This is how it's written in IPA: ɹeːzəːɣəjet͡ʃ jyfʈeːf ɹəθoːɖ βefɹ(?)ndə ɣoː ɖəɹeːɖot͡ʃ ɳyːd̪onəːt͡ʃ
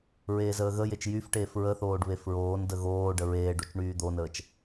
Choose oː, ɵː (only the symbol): oː